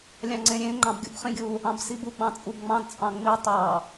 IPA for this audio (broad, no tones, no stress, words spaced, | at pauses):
lʲɑ̃ŋ͡ǀẽɾʲẽ ŋ͡ǃɑ̃bɡʲṵbχĩɡʲu | ɑ̃bsibuɡ͡bɑ̃ t͡sʼubŋ͡mɑ̃dt͡sʼɑ̃ ŋ͡mi tˤɑ